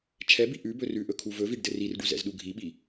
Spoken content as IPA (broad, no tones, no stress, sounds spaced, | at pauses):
t͡ʃʰ ɛ b i ʔ ʉ b ɵ r ʉ ʔ ɵ kʰ u v ɵ v i ɖ d ɘ r i r ɖ u z ɛ̰ z ɗ u ɡʱ i ɓ i